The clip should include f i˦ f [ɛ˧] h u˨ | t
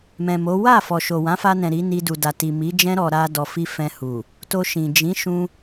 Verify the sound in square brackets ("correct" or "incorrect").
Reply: incorrect